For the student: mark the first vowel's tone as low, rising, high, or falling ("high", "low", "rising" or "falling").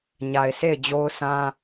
low